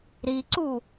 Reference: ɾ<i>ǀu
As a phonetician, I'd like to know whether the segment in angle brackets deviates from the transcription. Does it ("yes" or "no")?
no